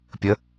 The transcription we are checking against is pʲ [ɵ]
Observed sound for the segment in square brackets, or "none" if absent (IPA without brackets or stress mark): ə